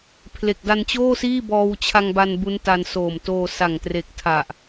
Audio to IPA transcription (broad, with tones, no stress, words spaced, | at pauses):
pʰle˨˩k̚da˧nt͡ɕoː˥˩siː˥˩ bɔː˧wt͡ɕʰa˧ŋ ba˧n bu˦˥nta˧n soː˨˩m toː˧sa˨˩ŋ tre˨˩k̚tʰa˨˩ʔ